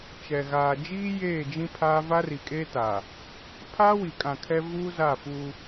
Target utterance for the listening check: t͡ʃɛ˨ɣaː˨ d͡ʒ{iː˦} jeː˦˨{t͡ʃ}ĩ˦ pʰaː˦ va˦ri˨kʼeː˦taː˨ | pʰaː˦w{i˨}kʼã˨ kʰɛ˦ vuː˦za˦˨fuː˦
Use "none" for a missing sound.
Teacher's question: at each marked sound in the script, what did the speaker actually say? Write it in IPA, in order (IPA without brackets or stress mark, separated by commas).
iː˦, d͡ʒ, i˨